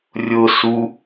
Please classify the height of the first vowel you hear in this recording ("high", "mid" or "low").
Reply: high